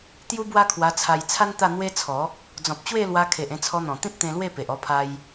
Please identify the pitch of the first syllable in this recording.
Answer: high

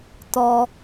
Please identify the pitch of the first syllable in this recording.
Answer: low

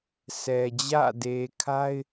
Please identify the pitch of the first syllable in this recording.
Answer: low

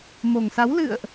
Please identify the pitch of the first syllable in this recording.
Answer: low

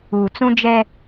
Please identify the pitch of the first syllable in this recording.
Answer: low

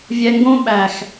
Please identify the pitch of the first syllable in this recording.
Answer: low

